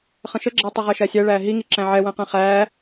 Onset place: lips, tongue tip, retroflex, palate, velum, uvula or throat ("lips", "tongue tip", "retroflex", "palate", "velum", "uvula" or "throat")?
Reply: uvula